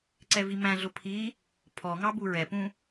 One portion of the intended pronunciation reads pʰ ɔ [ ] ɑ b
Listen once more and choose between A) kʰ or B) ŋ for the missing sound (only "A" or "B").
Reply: B